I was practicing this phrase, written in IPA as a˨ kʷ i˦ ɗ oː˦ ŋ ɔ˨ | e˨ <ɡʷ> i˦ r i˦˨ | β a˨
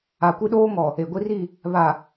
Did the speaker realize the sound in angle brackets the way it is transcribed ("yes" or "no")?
yes